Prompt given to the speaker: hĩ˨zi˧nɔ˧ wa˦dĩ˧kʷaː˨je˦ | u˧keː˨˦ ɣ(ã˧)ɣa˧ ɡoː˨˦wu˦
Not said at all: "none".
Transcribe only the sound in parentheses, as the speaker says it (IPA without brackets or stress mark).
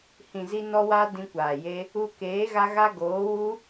a˧